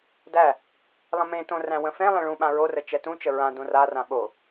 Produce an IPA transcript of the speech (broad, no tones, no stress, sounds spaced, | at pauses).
d æ | lˠ ə̃ m ẽ t õ r æ̃ w ə̃ f ẽ lˠ ẽ ɭ ũ ɓ ã ɹ o r ə t͡ʃ ɛ t ũ t͡ʃ ə ɹ ã d õ r a r ã ɓ o